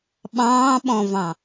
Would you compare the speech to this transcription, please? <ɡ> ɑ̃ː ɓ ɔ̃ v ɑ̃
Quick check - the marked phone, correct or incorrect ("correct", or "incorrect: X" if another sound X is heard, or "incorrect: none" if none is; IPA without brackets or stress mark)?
incorrect: ɓ